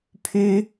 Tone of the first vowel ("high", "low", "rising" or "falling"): high